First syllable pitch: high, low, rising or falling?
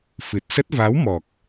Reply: low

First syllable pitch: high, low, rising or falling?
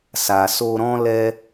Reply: low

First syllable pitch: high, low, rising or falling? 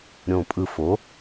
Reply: low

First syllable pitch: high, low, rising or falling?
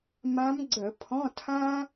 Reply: rising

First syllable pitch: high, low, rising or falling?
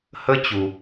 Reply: high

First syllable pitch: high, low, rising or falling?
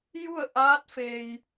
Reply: falling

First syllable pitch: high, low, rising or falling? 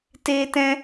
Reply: high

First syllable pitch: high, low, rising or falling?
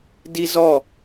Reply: high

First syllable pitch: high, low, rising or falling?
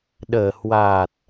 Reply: low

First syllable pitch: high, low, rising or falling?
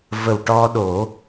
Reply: low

